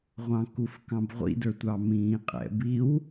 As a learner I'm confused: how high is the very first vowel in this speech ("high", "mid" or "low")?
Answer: low